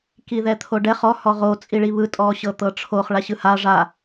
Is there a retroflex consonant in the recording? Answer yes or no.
yes